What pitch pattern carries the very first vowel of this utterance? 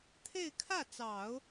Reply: falling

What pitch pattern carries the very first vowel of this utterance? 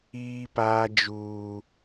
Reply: high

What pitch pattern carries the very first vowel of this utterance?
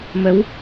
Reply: rising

